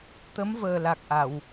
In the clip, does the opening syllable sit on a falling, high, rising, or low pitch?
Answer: rising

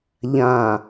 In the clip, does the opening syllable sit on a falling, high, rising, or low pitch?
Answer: low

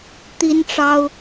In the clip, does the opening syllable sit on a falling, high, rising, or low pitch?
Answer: high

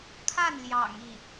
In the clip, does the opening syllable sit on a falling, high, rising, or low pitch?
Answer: falling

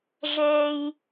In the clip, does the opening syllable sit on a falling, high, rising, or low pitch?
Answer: high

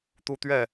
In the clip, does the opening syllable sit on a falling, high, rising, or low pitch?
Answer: high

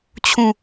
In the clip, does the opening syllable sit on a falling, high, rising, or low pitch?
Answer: falling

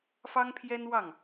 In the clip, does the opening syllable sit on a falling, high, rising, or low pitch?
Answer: high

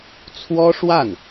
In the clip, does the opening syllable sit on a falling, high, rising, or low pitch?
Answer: high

